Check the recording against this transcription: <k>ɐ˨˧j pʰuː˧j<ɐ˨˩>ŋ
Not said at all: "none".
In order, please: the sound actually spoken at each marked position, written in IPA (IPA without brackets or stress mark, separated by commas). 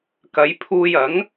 k, ɐ˨˥